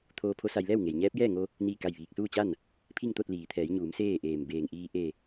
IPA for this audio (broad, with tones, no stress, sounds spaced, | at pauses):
t̪ʰ oː˧ pʰ o˧˥ s a˧ j l ɛː˥˨ w ŋ e˩ j ɲ ɛː˧˥ p̚ j ɛː˥˨ ŋ o˧ | n iː˥˨ k a˥˨ j ʋ iː˧ k̚ s uː˥˨ t͡ɕ a˥˨ n | pʰ i˥˨ ŋ t̪ o˥˨ t̚ l iː˩ t̪ʰ ɛː˩˧ j ɲ uː˩˧ m s eː˥˨ ʔ eː˧˩ m b eː˧˩ ŋ ʔ iː˧ ʔ e˧˩